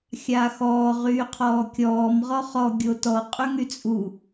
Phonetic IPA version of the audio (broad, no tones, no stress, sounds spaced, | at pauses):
xʲ aː x ɔː ʁ yː qʰ ɔː kʲ ɔː m ʁ ɔ χ ɔ ɡʲ o t ɔ qʼ ø ŋ y t͡sʼ u